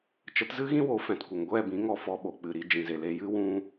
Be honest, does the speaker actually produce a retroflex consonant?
no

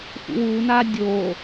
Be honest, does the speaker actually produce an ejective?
no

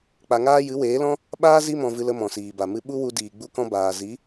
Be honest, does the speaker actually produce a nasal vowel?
yes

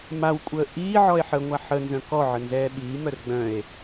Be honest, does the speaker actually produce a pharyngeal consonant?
yes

